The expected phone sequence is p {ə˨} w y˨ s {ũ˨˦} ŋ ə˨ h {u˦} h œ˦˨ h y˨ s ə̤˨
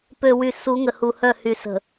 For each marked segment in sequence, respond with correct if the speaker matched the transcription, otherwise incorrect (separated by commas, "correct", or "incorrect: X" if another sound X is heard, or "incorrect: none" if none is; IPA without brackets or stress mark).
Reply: incorrect: ø˨, incorrect: u˨˦, incorrect: u˨